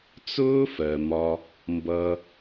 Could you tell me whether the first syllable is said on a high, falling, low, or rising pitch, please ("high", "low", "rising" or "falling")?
high